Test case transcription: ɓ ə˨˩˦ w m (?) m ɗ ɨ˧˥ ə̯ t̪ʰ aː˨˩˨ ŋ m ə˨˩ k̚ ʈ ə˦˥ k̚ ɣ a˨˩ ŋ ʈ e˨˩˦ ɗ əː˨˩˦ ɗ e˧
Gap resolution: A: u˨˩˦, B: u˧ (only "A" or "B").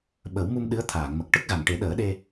B